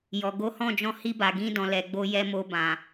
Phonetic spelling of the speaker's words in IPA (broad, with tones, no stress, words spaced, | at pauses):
jɔ˨ ɡo˨˦hɔ̃˦˨d͡ʒɔ̃˧ hi˧ba˨ ɡĩ˧dɔ̃˨ lɛ˨ɡ͡bo˧jɛ˧mo˧ bã˨